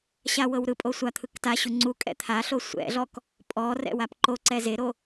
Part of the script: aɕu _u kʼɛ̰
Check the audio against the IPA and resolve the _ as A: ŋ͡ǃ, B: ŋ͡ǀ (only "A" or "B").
B